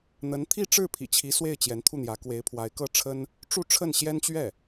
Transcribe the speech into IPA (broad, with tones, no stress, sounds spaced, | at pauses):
n̪ ə˧˥ n t̪ʰ i˥˧ ʈ͡ʂ ɻ̩˥˩ pʰ ḭ˨˩ t͡ɕʰ i˧˥ s w e˥˩ ɪ̯ t͡ɕ j ɛ˧˥ n t̪ʰ u˥˩ n̪ j ä˧˥ k w e˧˥ ɪ̯ pʰ w a˧˥ ɪ̯ k ɤ˥˩ ʈ͡ʂʰ ə˥ n | ʈ͡ʂ u˥˧ ʈ͡ʂʰ ə˥˩ n ɕ j ɛ˥ n t͡ɕ ɥ ɛ˥˩